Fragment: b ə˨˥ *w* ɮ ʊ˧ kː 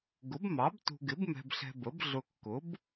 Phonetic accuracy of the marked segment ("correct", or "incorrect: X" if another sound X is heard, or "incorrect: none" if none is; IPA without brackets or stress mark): incorrect: b